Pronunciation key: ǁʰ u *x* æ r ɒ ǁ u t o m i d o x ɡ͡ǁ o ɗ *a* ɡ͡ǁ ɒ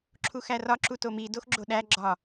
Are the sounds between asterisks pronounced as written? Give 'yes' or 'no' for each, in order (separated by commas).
yes, no